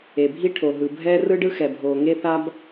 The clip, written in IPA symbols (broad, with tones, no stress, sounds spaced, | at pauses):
e˩ bʱ i˥ ʈʰ o˩ ɦ ɯ˩ bʱ ɛː˥ r ɯ˥ ɖ ɯ˥ x ɛ˩ bʱ oː˩ ŋ e˥ θ a˥ b